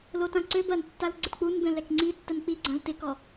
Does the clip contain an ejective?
no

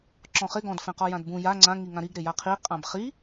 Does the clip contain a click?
yes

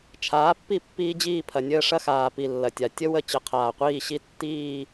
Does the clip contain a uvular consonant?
yes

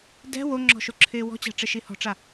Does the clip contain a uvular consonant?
no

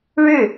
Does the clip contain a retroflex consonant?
yes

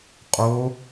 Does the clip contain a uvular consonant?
yes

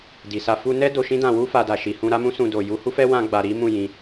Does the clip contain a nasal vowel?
yes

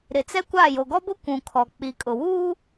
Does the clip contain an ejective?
yes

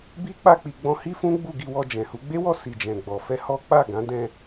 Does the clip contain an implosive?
no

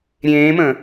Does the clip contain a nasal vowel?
yes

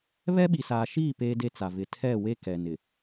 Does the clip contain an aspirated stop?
yes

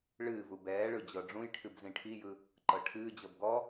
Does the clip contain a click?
yes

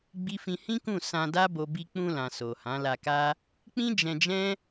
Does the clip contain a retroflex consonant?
no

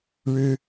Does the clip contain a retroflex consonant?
yes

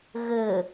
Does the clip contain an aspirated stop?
no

